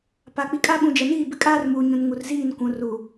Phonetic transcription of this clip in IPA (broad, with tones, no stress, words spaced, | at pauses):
pa˨k͡pi˨kʼa˦ ɓũ˨d͡ʒɛ˨niː˦˨ bɪ˦kʼaː˦rmuː˨ɲũ˨n ŋu˨rziː˦˨n kʷũ˨ ru˨